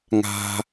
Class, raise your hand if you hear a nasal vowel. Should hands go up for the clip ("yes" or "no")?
no